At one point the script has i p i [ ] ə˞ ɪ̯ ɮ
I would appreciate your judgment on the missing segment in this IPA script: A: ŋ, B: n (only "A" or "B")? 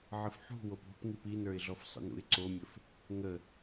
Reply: B